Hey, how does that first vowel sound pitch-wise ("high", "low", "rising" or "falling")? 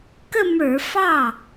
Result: falling